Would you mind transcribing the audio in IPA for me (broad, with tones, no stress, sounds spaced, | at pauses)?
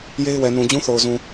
j e˦ ɪ̯ w ɛ˨ n ũ˨ d͡ʑ ũ˦ θ o˨ ʊ̯ z ũ˨